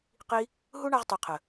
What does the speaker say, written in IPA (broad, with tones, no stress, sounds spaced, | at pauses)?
q i˧ | ɦ u˦ ɳ a˧ ʁ tˤ i˨ qʰ ə˨